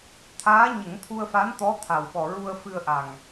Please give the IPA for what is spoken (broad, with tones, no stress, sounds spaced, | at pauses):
t̪ʰ aː˧˥ ɲ ə˨˩˦ ŋ t̪ʰ u˧ ə̯ f a˧˥ n t̪ ɔ˧˥ t̪ʰ a˨˩ w ɓ ɔ˨˩ ɹ u˧ ə̯ f ɨ˧ ə̯ ʔ a˨˩ ŋ